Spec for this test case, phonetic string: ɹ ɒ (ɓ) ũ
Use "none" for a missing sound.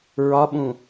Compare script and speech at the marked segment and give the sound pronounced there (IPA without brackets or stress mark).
ɓ